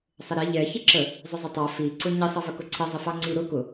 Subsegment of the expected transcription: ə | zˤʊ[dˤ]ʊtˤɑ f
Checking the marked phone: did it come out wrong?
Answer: yes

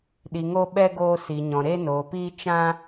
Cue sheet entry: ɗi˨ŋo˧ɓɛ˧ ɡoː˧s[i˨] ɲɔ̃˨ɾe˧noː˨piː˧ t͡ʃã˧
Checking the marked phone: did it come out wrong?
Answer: no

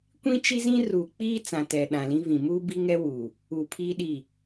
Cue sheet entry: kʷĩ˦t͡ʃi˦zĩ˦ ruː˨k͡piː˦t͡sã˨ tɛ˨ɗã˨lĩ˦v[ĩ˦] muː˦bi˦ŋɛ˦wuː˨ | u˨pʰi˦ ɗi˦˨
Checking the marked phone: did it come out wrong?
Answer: yes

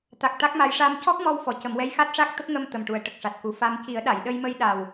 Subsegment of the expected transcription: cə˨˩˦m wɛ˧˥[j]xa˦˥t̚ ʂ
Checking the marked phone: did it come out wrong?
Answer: no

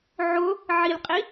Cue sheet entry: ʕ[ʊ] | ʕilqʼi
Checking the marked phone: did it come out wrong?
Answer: no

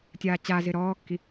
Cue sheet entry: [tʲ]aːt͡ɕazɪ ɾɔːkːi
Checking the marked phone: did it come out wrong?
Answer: no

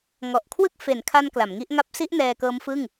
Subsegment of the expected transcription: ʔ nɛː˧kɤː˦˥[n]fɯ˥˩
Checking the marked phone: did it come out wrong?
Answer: yes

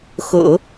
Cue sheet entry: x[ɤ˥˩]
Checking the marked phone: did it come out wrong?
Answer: yes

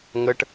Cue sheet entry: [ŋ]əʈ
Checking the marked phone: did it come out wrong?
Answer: no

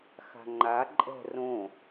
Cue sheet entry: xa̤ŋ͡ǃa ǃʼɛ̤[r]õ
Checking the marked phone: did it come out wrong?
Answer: no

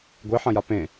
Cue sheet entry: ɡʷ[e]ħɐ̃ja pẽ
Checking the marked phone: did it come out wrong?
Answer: no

